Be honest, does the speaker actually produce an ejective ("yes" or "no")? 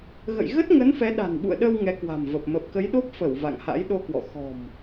no